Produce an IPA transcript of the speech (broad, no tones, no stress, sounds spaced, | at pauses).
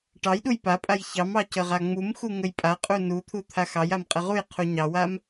ʈ ɑ j ɗ u j p a pʼ a j ç ɑ m ɑ c ə ʁ a ŋ͡m u m x u ŋ ə j pʼ a qʼ u n u t̪ʰ u t̪ʰ a x ɑ j a m qʼ ə ʁ u j qʰ u ɲ ɑ w a m